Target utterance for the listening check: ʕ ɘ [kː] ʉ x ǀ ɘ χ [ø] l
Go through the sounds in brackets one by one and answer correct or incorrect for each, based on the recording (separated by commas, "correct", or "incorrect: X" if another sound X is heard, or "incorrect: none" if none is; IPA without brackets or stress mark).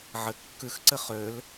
correct, correct